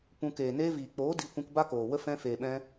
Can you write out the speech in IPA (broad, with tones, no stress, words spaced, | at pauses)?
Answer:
pũ˧ keː˨neː˧viː˨ k͡poː˨˦ di˧ kʷũ˧kba˦koː˨wə˦ fɛ̃˧feː˨ɓɛ̃˧